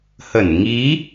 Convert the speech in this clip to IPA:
hə˧˩n ŋi˨˦

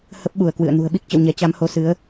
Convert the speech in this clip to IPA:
hə˦˥p̚ɓu˧˩ə̯kwɨ̰˧˨ə̯ nṳ˨˩ə̯ɓi˦˥k̚t͡ɕə̰˧˨w ɲɛ˨˦t͡ɕa˨˦mho˨˦ sɨ˨˦ə̯

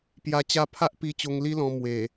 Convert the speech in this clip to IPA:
pja˧ t͡ɕa˧pʰa˦ʔ pi˧t͡ɕo˧ŋ li˦lɔ̃˧ mwe˨˩

